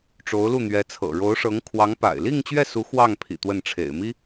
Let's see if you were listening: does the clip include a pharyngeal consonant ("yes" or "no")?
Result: no